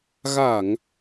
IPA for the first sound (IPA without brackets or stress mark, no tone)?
ɣ